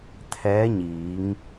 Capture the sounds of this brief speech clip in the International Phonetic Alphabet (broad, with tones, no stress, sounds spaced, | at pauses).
t̪ʰ ɛː˧˥ ɲ iː˩˧ ŋ